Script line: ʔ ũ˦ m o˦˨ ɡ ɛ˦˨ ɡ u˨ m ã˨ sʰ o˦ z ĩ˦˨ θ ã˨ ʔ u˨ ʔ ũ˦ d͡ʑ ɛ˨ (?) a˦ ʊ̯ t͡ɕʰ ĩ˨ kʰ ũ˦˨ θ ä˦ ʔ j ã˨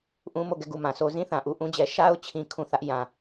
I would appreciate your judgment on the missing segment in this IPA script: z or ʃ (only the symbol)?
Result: ʃ